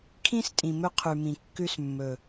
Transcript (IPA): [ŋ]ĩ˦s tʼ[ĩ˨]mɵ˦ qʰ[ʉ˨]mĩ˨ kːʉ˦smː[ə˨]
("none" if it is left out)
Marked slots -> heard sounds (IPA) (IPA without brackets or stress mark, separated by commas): kʰ, ĩ˨, ʉ˨, ɵ˨